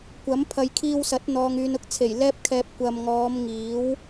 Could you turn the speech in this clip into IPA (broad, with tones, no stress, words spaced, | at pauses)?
kʷɐ˨˥m pʰɐ˨jkʰiː˧w sɐ˨˥t̚n̪ɔː˨ŋ yː˨nʊ˥k̚t͡sʰe˨˩j lɛː˥p̚kʰɛː˧p̚ kʷɐ˨mŋɔː˨˧m ŋiː˨˥w